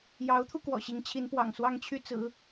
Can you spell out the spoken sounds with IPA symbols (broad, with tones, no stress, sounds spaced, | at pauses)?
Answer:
j ɑ˧˥ ʊ̯ t̪ʰ u˧ k w ɔ̰˨˩ ɕ i˧˥ ŋ t͡ɕʰ i˧˥ n p w ɑ̰˨˩ ŋ s w ɑ˥˧ ŋ t͡ɕʰ y˥˩ t͡s ɹ̩˨˩˦